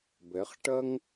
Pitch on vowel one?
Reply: rising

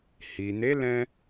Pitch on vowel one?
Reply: low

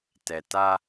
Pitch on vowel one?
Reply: low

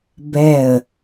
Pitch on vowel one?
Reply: falling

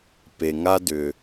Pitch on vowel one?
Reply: low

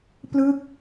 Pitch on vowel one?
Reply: falling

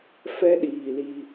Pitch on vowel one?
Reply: high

